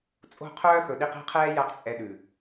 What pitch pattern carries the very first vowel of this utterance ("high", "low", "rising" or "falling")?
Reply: falling